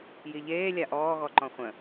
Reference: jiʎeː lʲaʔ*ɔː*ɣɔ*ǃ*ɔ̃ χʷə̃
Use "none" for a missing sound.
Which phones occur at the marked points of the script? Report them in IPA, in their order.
ɔː, ǃ

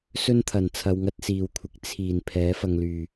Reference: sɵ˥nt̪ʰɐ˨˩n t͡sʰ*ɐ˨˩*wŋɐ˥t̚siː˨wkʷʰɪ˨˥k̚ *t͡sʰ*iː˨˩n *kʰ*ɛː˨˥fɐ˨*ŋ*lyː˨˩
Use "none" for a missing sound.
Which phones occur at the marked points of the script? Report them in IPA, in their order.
ɐ˧, t͡sʰ, pʰ, ŋ

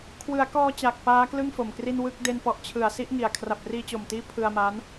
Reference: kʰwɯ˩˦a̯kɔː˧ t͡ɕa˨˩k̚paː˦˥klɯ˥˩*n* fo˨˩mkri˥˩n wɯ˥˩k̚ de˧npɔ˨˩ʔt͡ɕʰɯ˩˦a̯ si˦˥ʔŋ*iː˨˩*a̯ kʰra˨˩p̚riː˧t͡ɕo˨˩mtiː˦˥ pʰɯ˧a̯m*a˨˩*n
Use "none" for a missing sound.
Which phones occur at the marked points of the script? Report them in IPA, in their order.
ŋ, i˨˩, a˦˥

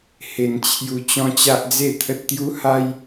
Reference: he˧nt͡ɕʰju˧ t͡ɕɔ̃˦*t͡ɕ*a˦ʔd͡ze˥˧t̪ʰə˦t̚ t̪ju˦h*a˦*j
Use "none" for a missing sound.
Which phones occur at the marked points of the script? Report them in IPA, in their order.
t͡ɕ, a˦

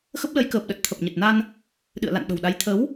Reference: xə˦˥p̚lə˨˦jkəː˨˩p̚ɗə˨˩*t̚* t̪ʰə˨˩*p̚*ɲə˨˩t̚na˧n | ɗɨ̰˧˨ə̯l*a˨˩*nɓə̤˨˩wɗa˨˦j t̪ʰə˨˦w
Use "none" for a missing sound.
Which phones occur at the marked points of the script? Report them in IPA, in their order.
t̚, p̚, a̰˧˨

